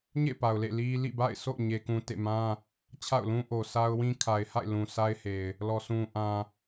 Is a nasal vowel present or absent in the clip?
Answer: present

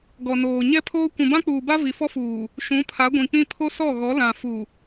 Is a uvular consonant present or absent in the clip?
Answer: absent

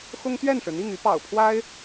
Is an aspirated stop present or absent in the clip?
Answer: present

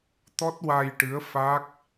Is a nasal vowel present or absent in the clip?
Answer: absent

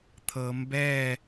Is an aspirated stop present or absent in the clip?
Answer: present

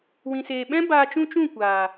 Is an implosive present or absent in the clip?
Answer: present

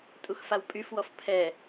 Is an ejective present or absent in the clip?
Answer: present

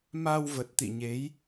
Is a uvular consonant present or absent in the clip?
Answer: absent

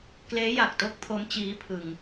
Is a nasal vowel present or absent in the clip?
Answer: absent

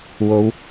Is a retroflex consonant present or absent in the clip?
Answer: absent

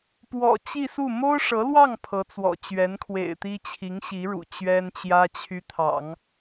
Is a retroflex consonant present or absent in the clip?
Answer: present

